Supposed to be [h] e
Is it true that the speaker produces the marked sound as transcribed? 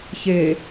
no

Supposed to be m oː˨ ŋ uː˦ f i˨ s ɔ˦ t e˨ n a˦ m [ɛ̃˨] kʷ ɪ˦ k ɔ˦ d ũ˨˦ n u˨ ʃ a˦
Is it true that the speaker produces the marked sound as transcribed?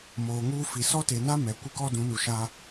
no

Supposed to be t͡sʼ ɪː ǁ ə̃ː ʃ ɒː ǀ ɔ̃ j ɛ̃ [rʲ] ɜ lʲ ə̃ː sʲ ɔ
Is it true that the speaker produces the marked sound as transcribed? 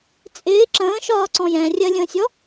yes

